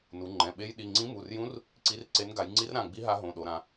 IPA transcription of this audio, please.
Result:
n u˩˧ ŋ͡ǃ ɛ̃˩˧˩ ɓ e˧˥ j ɗ i˩˧˩ ŋ͡ǀ ĩ˧˥ m u˩˧˩ r j ũ˧˥ r | ǀ i˧˥ r ǀ e˧˥ n ɡ a˩˧ j ŋ͡ǀ i˧˥ r ɾ ã˩˧˩ ɡ͡b i˧˥ ɦ a˧˥ ɦ õ˩˧˩ ɗ o˩˧ ɾ ã˩˧

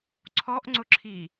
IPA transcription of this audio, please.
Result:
ǀʰ ɔ ʔ ŋ͡ǀ ʊ ǁʰ i

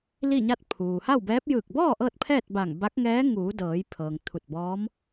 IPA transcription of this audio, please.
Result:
l i˥˨ ɲ a˥˨ t̚ pʰ uː˩ h a˥˨ w b ɛː˧˥ p̚ j ɯː˧˩ k̚ b ɔː˥˨ ʔ ɤː˥˨ t̚ pʰ ɛː˥˨ t̚ b a˧˩ ŋ b a˧˥ k̚ ŋ ɛː˧˥ ŋ uː˩˧ d ɤː˩˧ j pʰ ɤː˩ ŋ t̪ʰ u˧˩ t̚ b ɔː˧˥ m

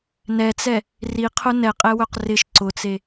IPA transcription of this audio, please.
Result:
n ɛ t͡s ɛ | r i qʰ ʊ n ɛ qʼ ɛ w œ q r ɪ ʃ ǀ ʊ t͡s e

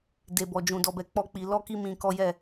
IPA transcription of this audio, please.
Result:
d e˨ b ɔ˨ d͡ʒ ũ˨ d ɔ˧ b ɛ˧ k͡p ɔ˦ k͡p i˧ l ɔ˦ k i˦ m ĩ˧ k ɔ˦ j ɛ˦˨

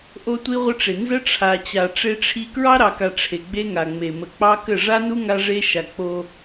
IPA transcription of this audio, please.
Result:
ʔ o˦ tʷ i˦ ʁʷ ə˦ ʈ͡ʂ e˨ n z ə˦ ʈ͡ʂʰ a˨ t͡ɕ a˨ ʈ͡ʂ e˦ ʈ͡ʂʰ i˦ k ɹ ɑ˦ ɾ ɑ˨ k a˨ ʈ͡ʂʰ e˨ ɡ͡b e˦ ŋ a˨ ŋ͡m e˨ m ə˨ k͡p ɑ˦ k ə˦˨ ʐ a˦ n u˦ ŋ a˦ ʐ e˦ ʃ a˨ k͡p o˦

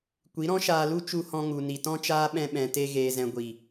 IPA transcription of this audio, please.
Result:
kʷ i˨˦ ɾ ɔ̃˦ ʃ aː˧ l u˦ t͡ʃ u˧ h ɔ̃˧ ŋ u˨ n i˨ t ɔ̃˦ t͡ʃ aː˦ ɓ ɛ̃˧ ɓ ɛ̃˨ t e˧ ɣ eː˨ z ɛ̃˨ ɡʷ i˨

